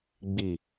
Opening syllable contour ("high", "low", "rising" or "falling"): low